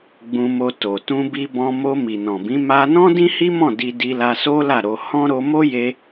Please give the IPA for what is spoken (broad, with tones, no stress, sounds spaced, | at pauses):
ɡ͡b ũ˧ m o˧ t o˨ t ũ˧ b i˧ b ɔ̃˧ m o˧ m i˨ n ɔ̃˨ b ĩ˨˦ m a˧ n ɔ̃˦ d ĩ˦ h i˦ m ɔ̃˦˨ d i˧ d i˧ l a˧ s o˦ l a˦˨ ɾ o˧ h ɔ̃˦ ɾ o˧ m o˦ j e˧